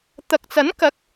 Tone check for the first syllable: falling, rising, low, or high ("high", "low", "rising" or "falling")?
low